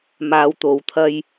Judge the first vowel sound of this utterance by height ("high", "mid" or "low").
low